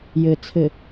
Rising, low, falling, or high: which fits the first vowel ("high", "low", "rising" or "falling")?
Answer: low